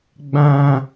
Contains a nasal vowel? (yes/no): yes